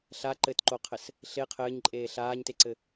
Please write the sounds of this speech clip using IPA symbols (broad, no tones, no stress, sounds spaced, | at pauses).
ɬ a ǃ ɘ t ǃ o qʰ ɘ s | ɬ e qʰ ɘː ɲ ǃʼ eː ɬ aː ɲ t e ǀ ɘ